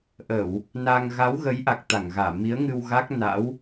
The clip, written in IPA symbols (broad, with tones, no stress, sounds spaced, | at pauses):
ʔ ə˧˩˨ w | n a˧ ŋ ɣ a˨˦ w ɣ ə˨˦ j ʔ a˨˩ k̚ t̪ a˧˩ ŋ ɣ aː˧˩ m i˨˦ ə̯ ŋ ɨ˧ w ɣ a˦˥ k̚ n a̰˧˥ w